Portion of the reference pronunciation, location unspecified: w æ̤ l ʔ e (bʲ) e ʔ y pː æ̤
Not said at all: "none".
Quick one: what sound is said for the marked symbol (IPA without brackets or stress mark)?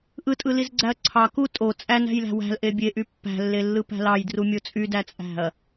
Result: bʲ